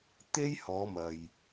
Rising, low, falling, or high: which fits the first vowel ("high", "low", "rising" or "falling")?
high